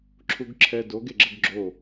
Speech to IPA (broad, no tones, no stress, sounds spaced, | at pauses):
ǁʰ u ɡ ǁʰ ɛ d o ɡ e ɡ͡ǁ ə ɡ ɡ͡ǁ o